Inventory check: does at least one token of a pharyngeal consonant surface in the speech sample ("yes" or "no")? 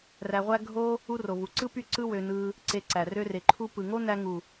no